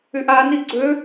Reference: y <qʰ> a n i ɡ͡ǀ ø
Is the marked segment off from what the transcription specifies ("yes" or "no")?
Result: yes